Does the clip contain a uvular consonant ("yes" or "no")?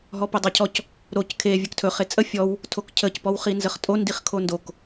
yes